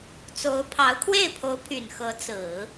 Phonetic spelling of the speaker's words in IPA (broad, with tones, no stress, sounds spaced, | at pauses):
t͡s o˧˥ ʊ̯ pʰ ɑ˧˥ ʊ̯ kʰ w e˥˩ ɪ̯ pʰ o˧˥ ʊ̯ pʰ y˨˩ n x ɤ˧˥ t͡s ɹ̩˨˩˦